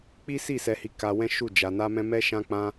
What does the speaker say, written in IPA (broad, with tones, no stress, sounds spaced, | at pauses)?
k͡p i˦ s i˦˨ s ɛ˧ h i˧ k a˧ w ɛ̃˦ ʃ u˦˨ d͡ʒ a˧ n a˦ m ɛ̃˦ m ɛ˦ ʃ ã˦ k͡p ã˦